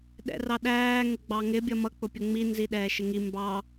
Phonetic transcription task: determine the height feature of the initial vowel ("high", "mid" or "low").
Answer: mid